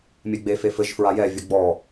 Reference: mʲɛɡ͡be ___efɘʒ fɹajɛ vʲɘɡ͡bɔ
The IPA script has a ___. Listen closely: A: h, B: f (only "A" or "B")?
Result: B